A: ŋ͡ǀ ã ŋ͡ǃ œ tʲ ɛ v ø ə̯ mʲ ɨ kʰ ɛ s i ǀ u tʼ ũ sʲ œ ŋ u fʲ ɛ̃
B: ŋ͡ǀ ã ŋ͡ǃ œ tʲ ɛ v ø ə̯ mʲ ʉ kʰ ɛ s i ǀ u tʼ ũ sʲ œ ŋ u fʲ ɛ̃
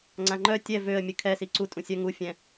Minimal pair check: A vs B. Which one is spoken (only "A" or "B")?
A